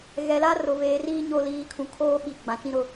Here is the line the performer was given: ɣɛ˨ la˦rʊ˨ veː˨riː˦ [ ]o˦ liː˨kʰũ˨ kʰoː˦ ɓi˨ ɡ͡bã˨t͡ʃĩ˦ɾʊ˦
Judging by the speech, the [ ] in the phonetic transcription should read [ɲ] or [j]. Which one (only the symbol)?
ɲ